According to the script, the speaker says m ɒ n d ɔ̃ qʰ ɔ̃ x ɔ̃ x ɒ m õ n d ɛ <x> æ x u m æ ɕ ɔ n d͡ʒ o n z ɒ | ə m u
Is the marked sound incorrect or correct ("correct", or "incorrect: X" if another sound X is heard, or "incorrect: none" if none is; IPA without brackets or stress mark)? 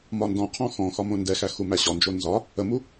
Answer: correct